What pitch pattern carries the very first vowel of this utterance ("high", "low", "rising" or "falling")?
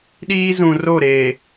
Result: high